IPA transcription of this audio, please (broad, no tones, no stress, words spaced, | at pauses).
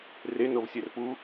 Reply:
renovsʲɛr pu